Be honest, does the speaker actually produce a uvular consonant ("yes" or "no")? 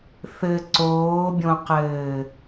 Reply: yes